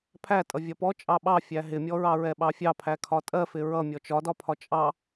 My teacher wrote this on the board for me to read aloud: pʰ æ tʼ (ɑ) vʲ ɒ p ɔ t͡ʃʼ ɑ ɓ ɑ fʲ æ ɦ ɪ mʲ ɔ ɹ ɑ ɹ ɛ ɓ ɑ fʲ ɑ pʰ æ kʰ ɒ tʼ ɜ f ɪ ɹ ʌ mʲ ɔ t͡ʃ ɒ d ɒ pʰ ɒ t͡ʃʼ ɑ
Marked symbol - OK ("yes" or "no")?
no